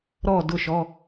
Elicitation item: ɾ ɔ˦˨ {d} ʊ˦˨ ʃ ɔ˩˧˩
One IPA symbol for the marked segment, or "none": d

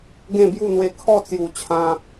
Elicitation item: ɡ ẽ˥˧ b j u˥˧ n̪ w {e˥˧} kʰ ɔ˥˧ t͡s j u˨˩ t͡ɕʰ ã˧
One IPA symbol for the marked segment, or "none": e˧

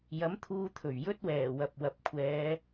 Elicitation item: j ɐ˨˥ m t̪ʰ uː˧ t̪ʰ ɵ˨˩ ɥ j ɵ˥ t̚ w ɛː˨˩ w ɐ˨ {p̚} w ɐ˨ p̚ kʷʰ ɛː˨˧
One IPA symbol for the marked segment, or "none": p̚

